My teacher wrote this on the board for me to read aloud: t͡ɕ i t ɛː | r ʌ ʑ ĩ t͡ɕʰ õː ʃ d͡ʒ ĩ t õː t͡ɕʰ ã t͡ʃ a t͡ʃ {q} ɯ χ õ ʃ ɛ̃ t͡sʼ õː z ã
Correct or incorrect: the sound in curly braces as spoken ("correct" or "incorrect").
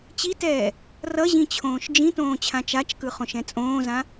incorrect